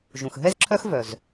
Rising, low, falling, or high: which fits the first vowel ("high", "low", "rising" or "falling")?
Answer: low